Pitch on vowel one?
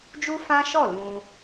high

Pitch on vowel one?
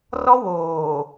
high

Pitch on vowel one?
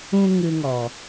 high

